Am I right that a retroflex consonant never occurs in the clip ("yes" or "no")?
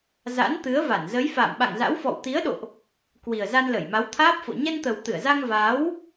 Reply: yes